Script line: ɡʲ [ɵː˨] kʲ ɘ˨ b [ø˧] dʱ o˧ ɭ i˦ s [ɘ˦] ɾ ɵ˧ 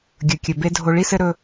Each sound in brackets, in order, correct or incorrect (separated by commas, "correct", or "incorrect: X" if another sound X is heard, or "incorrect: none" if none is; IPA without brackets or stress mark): incorrect: ɵ˨, incorrect: e˧, correct